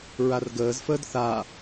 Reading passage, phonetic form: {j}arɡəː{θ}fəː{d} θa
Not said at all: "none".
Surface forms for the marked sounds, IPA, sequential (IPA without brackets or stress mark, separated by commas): ɹ, z, d